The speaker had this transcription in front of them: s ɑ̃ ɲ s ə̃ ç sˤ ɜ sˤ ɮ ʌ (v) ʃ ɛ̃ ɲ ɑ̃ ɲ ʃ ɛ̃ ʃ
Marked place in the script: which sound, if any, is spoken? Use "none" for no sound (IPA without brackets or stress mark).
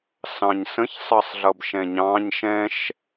b